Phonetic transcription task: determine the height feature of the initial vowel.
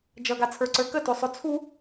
mid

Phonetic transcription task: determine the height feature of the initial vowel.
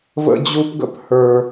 mid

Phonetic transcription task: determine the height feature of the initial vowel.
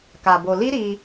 low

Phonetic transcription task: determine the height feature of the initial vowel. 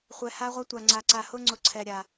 mid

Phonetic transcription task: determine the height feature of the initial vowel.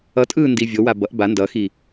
mid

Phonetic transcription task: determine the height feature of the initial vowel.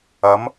low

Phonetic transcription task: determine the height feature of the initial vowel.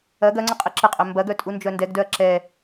low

